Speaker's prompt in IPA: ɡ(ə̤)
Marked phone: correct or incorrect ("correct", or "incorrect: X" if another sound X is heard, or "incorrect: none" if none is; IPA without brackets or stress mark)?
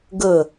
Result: incorrect: ə